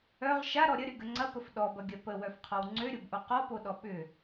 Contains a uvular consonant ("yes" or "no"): yes